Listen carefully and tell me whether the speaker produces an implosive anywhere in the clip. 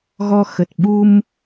yes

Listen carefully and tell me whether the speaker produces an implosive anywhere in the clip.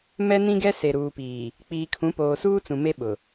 yes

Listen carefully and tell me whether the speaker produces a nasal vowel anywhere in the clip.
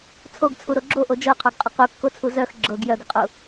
no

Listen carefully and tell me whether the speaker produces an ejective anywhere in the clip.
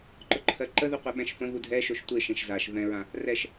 no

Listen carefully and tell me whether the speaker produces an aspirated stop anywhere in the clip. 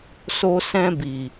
no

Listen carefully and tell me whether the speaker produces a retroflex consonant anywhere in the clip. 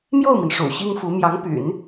yes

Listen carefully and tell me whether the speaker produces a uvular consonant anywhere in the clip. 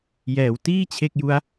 no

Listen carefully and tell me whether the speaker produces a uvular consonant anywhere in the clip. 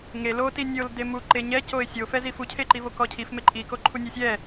no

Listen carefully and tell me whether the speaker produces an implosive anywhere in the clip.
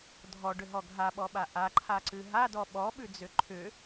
yes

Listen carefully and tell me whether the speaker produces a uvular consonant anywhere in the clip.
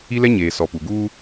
no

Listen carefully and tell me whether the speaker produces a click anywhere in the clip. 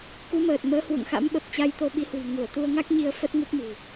no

